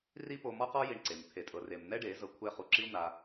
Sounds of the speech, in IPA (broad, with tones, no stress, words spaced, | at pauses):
ri˦po˧ mɔ˦qɔ˦ ji˧ɳǀe˨m t̪ʰe˨tʼɤ˨re˨m n̪ɛ˦ɖe˨˦ zɤ˧kʷʰɛ˦˨χu˧ǁi˦u̯ n̪a˧